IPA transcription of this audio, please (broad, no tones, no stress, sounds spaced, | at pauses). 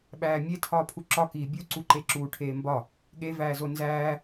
ɓ æː mʲ e tʰ ɒː pʰ u ǁ ɒ k iː bʲ u ǀ u ǃ e ǁ uː ʈʰ eː m b ɒ | ɠ e v æː z o n z æː